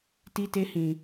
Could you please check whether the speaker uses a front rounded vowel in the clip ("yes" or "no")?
no